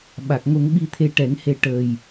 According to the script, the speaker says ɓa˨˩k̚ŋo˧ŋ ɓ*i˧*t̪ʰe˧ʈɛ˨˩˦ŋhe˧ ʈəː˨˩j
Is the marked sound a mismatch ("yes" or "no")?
no